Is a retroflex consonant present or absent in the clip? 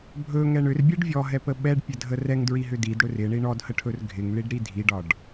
present